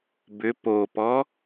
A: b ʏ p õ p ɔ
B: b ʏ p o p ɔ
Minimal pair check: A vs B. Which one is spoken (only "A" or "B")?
B